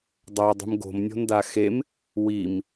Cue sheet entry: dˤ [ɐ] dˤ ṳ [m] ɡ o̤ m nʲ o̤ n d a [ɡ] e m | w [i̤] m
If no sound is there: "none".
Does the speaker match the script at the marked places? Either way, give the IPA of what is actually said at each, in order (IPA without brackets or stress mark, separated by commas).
a, m, x, i